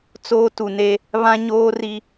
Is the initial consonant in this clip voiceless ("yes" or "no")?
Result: yes